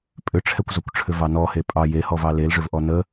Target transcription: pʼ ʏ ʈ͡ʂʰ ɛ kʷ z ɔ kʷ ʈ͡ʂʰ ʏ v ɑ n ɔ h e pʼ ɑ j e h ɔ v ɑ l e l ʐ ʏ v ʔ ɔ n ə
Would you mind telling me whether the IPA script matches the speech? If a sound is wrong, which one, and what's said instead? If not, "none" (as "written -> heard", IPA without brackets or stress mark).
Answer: none